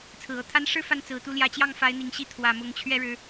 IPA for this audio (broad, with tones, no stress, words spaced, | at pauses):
t͡sʰɹ̩˨˩ɤ˥˩t̪ʰa˥n ʂɻ̩˥˧ fa˥˩n t͡sɹ̩˨˩t̪u˥˩ ljä˧˥t͡ɕjɑ˥˩ŋ fa˧˥ɪ̯n̪i˨˩ŋɕi˥˩ t̪ʰwä˨˩ mʊ˧˥ŋt͡ɕʰɥɛ˥ɻɻ̩˧˥